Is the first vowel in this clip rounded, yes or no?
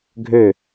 yes